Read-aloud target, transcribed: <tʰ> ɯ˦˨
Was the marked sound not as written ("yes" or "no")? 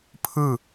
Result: yes